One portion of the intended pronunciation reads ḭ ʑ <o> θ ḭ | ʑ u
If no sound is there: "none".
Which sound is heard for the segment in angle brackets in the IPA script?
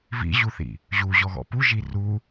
u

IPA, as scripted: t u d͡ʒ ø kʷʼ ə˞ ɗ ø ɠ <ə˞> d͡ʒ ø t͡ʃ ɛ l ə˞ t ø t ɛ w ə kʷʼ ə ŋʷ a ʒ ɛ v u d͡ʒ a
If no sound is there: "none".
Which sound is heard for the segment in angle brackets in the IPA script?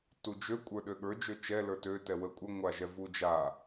ə˞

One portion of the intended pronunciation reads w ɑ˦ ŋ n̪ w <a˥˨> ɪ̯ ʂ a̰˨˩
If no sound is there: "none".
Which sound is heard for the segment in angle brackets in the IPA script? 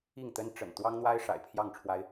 a˦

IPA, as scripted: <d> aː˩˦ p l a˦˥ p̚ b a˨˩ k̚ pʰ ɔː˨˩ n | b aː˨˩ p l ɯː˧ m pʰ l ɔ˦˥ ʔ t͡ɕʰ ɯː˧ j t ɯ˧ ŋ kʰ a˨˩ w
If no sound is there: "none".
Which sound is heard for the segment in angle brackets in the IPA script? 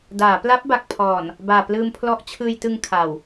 d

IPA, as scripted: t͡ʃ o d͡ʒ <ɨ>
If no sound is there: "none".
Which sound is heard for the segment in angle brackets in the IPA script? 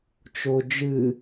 ɨ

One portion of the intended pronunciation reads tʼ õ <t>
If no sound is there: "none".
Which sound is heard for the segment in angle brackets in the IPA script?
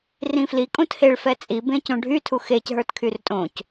c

